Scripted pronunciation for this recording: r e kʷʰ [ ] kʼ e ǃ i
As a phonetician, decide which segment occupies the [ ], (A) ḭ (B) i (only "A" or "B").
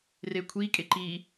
B